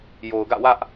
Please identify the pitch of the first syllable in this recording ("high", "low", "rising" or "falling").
low